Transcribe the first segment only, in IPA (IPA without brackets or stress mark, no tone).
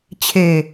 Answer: t͡ɕʰ